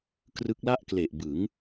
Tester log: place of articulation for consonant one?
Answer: velar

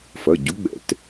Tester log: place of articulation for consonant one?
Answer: labial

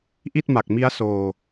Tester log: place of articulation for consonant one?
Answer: glottal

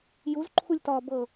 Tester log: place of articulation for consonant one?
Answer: palatal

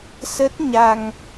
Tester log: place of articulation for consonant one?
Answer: alveolar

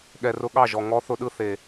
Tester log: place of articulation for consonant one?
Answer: velar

